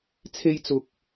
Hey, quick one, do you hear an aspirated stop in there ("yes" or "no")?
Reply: yes